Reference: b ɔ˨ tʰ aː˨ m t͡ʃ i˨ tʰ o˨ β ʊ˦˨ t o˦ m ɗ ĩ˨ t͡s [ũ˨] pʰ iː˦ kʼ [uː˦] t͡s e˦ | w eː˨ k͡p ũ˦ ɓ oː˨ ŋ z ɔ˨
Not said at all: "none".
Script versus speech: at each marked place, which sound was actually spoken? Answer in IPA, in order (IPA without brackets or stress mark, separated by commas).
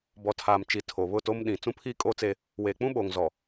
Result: ũ˦, oː˦